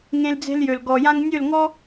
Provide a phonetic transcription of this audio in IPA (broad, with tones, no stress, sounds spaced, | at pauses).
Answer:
ŋ ẽ˧ l d͡z e̤˧ l j ø˨ l ɡ ɔ˨ j ã˧ ŋ nʲ ø˦˨ l ŋ ɔ˦